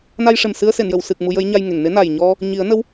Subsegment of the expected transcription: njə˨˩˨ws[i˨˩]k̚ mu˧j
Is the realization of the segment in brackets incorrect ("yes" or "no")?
yes